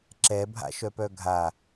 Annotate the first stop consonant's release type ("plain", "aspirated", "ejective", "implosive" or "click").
click